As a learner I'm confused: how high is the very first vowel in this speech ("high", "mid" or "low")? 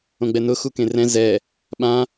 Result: mid